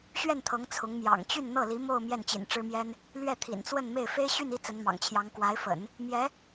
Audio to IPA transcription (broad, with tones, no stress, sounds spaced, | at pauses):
ɕ ɥ ɛ˥˩ n t̪ʰ ɤ˧˥ ŋ t͡sʰ ʊ˧˥ ŋ m j ɑ̰˨˩ ŋ t͡ɕ y˥˧ n n̪ ɤ˥˩ l i˧˥ m o˥˧ ʊ̯ m j ɛ˥˩ n t͡ɕ ḭ˨˩ n ʈ͡ʂ ɻ̩˥ m j ɛ˥ n | l ɥ ɛ˥˩ t̪ʰ ḭ˨˩ n t͡s w ə˥˧ n m e˥˩ ɪ̯ f e˥ ɪ̯ ɕ y˥˧ n i˥˩ t͡s ə˧˥ n m ɑ̰˨˩ ŋ t͡ɕʰ j ɑ˧˥ ŋ k w a˧˥ ɪ̯ f ə̰˨˩˦ n | m j ɛ˧˥